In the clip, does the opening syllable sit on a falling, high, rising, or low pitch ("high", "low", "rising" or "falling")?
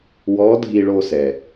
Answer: rising